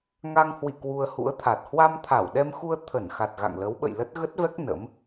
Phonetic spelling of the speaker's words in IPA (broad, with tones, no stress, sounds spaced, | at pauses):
ŋ a˧ ŋ h w ḭ˧˨ k w u˧ ə̯ h ṵ˧˥ ə̯ t̪ʰ a˨˩ t̚ h w a˧ m t̪ʰ a˧˩ w ɗ ɛ˧ m x u˧ ə̯ t̪ʰ ə˧˩ n x a˨˩ t̚ ɣ a̰˧˨ ŋ l ə˨˦ w ɓ ə̰˧˨ j l ə˦˥ t̚ ɣ ə˦˥ t̚ v ɛ˦˥ k̚ n ə̰˧˥ m